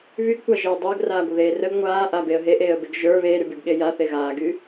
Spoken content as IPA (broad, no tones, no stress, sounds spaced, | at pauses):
β y ɡ kʷ a ʒ eː dˤ əː ɡ r aː ɡʷ ə ð eː r ə ɡ ŋʷ aː ʔ a b e ə̯ ɦ e ʔ eː ə̯ b e ɡ ʒ ə˞ β eː ɾ y b y ɡ ɠ e j a θ e ɣ aː ɡ y